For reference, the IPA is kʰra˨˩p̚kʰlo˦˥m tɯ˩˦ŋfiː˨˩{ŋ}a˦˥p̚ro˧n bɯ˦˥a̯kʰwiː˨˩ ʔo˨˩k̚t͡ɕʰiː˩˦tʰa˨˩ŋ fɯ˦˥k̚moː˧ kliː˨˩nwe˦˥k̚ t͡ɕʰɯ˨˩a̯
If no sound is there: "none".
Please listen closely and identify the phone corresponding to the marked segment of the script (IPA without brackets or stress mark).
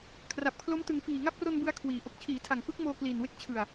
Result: ŋ